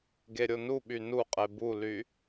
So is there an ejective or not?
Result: yes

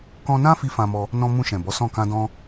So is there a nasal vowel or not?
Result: yes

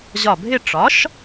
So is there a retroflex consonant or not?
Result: yes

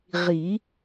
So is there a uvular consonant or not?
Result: yes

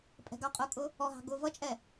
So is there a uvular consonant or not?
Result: yes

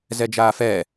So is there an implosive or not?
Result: no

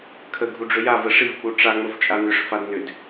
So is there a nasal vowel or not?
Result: no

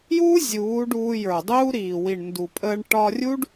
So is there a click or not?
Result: no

